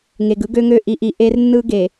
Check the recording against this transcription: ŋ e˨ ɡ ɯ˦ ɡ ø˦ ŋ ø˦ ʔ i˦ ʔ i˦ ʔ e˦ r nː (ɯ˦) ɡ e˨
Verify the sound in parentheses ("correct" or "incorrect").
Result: correct